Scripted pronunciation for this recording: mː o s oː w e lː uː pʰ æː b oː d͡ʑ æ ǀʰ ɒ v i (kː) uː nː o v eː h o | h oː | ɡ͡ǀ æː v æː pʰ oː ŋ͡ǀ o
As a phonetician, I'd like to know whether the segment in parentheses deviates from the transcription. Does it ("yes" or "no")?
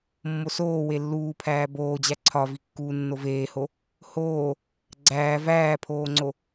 no